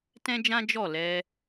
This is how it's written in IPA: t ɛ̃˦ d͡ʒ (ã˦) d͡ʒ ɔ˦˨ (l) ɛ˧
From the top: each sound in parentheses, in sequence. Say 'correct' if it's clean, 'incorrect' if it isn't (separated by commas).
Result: correct, correct